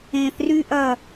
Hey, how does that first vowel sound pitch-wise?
low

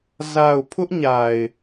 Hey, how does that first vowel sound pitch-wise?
low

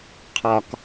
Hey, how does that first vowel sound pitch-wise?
high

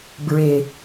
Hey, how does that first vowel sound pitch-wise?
low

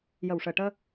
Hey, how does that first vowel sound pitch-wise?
low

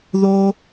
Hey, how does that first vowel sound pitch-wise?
low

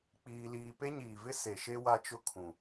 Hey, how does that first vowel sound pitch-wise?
high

